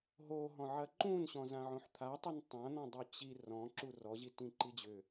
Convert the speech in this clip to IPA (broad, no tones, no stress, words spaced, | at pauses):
ɦoɦɔ̃ ʕɐǃũnɕɔ̃ zãʕõħt̪ʰatˤɵn tˤãn̪ɔ̃ dˤut͡ɕi rɔ̃ ǁurɔ ʑitĩǃid͡ʑʏ